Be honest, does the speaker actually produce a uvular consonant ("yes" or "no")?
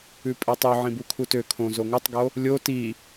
no